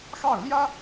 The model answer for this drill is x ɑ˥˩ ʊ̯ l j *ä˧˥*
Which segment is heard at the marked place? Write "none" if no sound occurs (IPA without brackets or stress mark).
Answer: ä˥